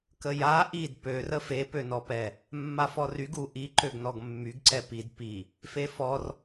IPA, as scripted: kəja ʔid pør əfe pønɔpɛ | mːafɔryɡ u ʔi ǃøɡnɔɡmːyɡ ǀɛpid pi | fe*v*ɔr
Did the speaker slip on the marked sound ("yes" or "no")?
yes